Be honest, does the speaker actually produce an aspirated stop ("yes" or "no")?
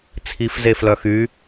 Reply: yes